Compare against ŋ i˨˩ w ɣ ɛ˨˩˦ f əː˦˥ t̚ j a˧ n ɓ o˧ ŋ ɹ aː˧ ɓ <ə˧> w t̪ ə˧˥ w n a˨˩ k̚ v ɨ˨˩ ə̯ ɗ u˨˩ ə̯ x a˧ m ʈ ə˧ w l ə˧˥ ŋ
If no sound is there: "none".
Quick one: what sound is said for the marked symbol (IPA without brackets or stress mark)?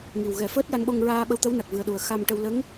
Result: ə˧